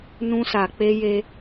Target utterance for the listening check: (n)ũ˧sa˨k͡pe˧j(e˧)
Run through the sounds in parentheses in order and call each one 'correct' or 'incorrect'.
correct, correct

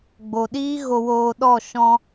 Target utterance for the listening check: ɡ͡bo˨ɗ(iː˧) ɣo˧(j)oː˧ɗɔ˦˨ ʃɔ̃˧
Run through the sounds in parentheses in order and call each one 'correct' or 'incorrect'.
incorrect: iː˦, incorrect: w

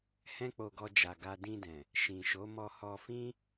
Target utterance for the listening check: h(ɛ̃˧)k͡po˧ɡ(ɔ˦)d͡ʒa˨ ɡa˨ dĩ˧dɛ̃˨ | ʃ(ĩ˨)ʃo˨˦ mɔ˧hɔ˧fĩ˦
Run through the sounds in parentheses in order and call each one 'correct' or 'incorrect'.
incorrect: ɛ̃˦, incorrect: ɔ˧, correct

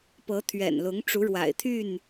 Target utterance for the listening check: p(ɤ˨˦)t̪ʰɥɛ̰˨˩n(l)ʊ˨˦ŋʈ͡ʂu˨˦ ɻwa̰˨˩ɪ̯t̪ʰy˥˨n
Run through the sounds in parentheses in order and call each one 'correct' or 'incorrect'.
correct, correct

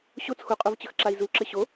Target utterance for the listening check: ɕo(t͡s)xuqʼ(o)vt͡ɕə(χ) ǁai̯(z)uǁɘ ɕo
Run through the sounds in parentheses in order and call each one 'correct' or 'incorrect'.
correct, correct, incorrect: x, correct

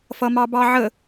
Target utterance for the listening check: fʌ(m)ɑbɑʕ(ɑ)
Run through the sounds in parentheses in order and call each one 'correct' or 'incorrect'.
correct, incorrect: ə

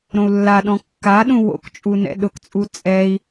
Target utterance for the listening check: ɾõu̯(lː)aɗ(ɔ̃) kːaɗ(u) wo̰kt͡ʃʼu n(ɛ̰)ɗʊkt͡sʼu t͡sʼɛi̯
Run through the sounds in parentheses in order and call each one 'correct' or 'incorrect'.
correct, correct, incorrect: ũ, correct

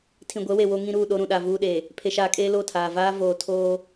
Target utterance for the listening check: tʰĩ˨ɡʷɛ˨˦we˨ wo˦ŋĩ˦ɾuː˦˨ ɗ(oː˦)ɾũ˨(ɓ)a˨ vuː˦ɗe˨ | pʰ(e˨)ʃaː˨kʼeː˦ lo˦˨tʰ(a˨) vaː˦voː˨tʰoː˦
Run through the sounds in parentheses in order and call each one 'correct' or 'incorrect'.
incorrect: o˦, incorrect: ɗ, correct, incorrect: aː˨

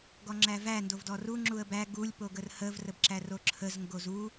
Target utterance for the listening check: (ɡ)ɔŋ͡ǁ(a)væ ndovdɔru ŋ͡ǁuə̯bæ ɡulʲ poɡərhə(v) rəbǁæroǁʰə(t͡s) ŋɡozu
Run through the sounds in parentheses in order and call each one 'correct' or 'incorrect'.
correct, incorrect: æ, correct, incorrect: z

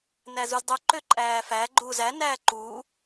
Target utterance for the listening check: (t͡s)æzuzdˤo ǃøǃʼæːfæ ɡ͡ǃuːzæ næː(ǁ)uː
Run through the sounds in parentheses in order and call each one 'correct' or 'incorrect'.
incorrect: n, incorrect: ǃ

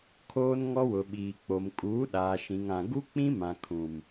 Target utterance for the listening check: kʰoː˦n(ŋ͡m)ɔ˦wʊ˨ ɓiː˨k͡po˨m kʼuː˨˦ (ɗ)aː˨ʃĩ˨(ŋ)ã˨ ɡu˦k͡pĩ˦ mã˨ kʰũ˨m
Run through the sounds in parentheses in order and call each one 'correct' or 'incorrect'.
incorrect: ŋ, correct, correct

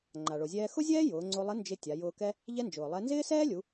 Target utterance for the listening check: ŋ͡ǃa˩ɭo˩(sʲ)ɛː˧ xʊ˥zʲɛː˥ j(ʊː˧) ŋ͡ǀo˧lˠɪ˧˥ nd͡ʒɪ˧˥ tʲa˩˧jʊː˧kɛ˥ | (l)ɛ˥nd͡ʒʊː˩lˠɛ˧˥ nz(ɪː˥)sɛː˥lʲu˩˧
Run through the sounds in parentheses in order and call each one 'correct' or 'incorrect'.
incorrect: zʲ, incorrect: ʊː˩˧, incorrect: ʎ, correct

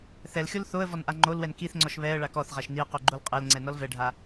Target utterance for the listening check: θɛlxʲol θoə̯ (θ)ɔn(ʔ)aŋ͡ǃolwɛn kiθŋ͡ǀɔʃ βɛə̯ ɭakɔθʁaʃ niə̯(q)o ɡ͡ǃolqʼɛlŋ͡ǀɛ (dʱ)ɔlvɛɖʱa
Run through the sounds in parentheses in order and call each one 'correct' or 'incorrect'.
incorrect: v, correct, correct, incorrect: n

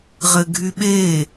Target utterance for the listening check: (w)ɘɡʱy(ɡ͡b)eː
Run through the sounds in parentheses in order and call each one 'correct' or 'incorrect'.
incorrect: ʁ, incorrect: ɓ

